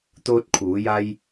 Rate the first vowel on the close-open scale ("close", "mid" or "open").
mid